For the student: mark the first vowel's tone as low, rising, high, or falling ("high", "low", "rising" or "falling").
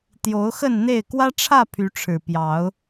rising